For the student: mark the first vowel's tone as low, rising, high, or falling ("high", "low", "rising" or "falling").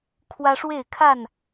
high